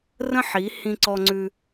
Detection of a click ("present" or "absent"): present